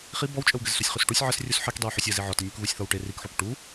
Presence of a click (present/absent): absent